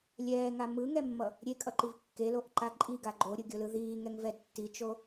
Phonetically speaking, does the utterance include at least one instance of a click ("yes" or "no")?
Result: yes